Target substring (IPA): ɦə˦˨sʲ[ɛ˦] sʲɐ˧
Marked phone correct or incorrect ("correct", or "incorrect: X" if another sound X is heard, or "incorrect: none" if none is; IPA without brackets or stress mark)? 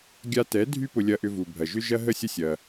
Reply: incorrect: ə˦